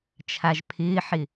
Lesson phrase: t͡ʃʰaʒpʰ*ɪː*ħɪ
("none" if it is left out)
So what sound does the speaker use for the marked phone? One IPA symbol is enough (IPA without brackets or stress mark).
ɪː